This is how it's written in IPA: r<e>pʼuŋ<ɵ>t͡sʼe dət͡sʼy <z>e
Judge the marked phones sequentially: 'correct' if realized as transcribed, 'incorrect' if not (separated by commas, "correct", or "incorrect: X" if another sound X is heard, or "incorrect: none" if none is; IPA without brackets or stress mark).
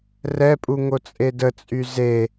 incorrect: ɛ, incorrect: o, correct